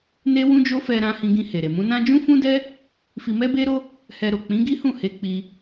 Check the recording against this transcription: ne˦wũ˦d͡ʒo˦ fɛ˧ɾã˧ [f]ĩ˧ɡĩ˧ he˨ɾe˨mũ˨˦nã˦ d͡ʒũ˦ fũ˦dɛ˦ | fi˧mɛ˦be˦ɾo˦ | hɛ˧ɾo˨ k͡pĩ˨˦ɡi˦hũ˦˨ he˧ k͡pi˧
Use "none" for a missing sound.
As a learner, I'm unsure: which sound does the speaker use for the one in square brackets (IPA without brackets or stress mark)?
h